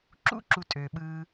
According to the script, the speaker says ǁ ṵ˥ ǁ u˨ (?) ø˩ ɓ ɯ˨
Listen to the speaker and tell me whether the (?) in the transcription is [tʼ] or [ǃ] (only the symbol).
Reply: tʼ